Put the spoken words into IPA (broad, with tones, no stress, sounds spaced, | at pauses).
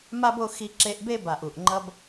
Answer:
m a˦ b o˧ x i˧ ǁ e˧ ʔ b e˦ b a˨ ʔ u˨ ʔ ŋ͡ǃ ʌ˧ b